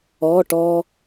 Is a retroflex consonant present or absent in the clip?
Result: present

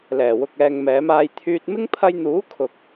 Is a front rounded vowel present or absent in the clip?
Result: present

